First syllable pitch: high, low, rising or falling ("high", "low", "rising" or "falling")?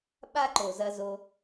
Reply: high